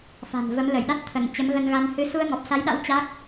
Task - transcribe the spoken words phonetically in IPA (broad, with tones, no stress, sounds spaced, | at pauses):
f a̤˨˩ n v ə˨˦ m l ə˧˩ j ɗ a˦˥ t̚ t̪ʰ ə˧˩ n t͡ɕ ə˨˦ m ɣ ə˧ n ɣ a˧ n h ɨ˧ s u˧ ə̯ ŋ ɔ˨˩ p̚ s a˨˦ j ɗ a̰˧˥ w t͡ɕ a˦˥ k̚